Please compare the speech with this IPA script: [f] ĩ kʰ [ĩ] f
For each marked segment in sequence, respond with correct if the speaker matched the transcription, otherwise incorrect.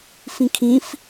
correct, correct

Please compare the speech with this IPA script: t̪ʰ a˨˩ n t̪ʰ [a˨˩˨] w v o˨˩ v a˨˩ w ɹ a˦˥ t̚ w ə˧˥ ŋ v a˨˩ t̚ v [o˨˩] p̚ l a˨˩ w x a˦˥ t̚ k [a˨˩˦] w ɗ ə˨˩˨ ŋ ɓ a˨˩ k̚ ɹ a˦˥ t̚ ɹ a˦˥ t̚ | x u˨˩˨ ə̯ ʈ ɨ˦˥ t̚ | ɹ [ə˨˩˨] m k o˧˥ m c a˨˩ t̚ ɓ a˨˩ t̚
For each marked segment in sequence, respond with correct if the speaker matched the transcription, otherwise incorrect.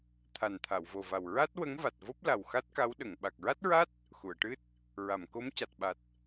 correct, incorrect, incorrect, incorrect

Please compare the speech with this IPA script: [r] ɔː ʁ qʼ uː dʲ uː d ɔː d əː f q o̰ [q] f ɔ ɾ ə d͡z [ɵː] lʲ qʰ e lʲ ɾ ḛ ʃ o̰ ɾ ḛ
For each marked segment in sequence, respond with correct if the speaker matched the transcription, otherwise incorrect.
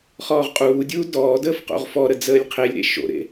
incorrect, incorrect, incorrect

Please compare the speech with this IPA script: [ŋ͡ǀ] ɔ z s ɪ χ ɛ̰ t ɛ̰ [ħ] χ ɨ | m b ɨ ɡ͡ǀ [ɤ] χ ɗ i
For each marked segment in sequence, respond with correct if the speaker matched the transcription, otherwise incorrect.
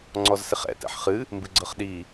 correct, correct, correct

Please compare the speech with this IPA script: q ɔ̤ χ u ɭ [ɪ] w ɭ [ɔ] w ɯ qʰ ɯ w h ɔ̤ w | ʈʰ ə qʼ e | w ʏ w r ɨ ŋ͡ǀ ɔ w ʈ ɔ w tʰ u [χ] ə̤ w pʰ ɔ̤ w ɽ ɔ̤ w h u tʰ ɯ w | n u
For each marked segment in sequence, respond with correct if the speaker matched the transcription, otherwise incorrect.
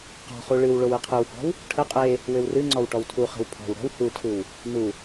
incorrect, incorrect, correct

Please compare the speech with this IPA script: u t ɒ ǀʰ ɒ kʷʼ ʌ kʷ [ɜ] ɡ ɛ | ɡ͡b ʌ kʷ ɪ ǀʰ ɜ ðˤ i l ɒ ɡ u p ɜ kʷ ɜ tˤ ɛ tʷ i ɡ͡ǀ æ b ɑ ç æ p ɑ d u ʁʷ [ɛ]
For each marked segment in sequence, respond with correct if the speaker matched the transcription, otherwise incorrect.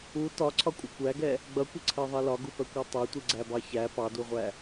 incorrect, incorrect

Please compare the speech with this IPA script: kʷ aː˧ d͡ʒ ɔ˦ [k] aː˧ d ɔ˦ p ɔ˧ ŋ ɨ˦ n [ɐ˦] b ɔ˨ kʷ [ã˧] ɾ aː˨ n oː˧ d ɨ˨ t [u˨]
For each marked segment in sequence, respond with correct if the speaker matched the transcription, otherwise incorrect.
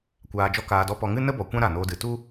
correct, incorrect, incorrect, incorrect

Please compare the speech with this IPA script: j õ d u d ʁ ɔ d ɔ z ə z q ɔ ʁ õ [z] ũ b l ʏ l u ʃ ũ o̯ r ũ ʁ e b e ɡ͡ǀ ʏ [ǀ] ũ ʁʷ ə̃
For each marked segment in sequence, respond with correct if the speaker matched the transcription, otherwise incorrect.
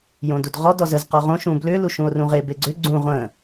incorrect, incorrect

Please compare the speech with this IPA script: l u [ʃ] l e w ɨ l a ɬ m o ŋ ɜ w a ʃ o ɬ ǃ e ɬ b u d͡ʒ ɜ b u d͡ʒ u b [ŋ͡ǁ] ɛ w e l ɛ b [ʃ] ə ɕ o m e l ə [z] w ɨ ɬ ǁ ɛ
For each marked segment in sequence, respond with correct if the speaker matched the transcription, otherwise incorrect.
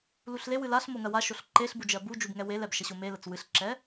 incorrect, incorrect, correct, incorrect

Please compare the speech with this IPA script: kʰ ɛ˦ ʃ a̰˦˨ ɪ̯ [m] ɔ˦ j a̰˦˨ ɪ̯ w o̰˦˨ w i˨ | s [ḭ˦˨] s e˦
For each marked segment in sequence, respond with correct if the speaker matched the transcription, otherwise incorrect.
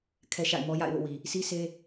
correct, incorrect

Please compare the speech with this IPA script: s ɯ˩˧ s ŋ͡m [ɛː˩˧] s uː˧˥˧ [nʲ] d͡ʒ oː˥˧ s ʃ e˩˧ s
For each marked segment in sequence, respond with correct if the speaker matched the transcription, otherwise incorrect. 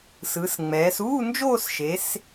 correct, incorrect

